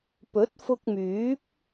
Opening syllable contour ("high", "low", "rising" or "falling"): rising